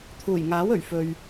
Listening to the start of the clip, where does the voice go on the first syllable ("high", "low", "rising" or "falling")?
low